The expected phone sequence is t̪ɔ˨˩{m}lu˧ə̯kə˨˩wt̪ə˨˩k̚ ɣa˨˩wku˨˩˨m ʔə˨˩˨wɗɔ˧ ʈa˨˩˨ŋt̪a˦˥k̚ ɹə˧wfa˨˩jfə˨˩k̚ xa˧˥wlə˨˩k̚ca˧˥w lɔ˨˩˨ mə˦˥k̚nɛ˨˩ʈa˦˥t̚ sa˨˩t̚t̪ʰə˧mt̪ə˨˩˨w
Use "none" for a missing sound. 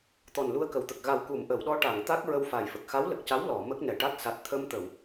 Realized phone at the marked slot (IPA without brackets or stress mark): n